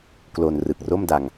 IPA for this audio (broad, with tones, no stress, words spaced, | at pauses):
klo˧n rɯ˨˩k̚ro˥˩mda˧ŋ